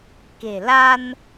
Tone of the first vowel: low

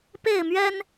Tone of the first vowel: falling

